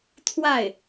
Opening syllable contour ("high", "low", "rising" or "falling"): falling